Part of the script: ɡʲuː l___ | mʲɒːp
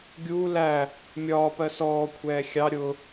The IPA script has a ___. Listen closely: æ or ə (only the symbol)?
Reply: æ